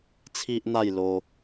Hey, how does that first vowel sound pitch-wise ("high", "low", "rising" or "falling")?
high